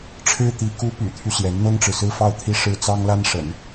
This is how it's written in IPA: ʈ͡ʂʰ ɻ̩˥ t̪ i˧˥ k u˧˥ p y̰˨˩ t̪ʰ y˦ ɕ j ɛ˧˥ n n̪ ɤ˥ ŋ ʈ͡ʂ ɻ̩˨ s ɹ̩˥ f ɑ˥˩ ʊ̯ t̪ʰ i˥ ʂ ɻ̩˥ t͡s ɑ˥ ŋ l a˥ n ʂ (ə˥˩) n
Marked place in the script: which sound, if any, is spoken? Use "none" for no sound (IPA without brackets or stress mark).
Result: ə̰˨˩˦